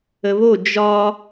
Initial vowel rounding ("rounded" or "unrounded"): unrounded